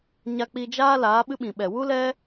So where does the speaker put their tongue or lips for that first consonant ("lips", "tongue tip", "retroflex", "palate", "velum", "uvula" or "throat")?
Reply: palate